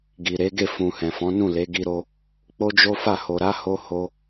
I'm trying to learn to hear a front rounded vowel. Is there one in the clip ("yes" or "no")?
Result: no